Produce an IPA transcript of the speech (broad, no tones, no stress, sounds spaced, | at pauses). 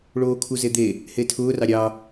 ɭ oː kʰ u z e d̪ e | h e tʰ ʊː r ɑ ɾʲ ɑ